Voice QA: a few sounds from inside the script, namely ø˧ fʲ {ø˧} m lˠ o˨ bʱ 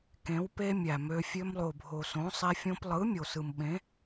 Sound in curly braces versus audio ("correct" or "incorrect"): correct